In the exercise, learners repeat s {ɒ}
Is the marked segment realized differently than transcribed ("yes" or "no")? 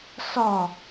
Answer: no